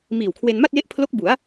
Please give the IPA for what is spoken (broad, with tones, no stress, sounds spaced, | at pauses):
m iː˨˩ w kʰ w e˧ n m a˥˩ t̚ j e˦˥ ʔ pʰ l o˦˥ k̚ b u˩˦ a̯